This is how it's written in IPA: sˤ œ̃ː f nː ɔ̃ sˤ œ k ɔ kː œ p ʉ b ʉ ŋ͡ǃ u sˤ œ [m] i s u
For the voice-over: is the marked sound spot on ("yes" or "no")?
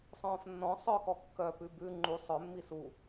no